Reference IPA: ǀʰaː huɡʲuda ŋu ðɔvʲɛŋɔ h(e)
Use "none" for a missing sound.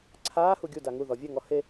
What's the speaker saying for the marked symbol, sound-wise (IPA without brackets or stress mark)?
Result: e